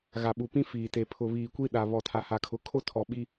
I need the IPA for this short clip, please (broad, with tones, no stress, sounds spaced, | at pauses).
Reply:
ɣ a˨ ɓ u˨ p ĩ˦ f iː˨ t e˨ pʰ ʊ˨ β iː˨ kʷ i˦ ɗ a˨ β ɔ˨ tʰ a˨ h a˨ kʰ ʊ˨˦ kʰ o˦ tʰ ɔ˨ ɓ i˦